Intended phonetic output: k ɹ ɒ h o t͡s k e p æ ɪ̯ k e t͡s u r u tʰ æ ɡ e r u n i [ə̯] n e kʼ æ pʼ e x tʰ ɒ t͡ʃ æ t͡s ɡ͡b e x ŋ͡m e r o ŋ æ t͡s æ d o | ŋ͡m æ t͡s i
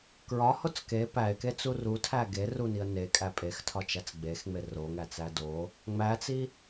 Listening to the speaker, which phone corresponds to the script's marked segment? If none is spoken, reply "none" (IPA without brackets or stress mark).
ə̯